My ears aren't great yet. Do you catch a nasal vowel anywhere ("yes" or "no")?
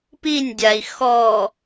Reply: no